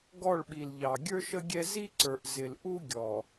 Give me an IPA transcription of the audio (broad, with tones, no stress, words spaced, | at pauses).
ɡɔ˦˨ɭɓi˨lʎɑ˨ ɡʲə˞˦ʃə˦ɡʲɛ˦ zi˦ǀə˞˨ʔ zɪ˨lʔu˦ɡʲɔ˨